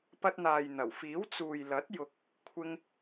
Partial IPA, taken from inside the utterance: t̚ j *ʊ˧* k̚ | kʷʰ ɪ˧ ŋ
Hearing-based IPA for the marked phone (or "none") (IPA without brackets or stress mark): ʊ˧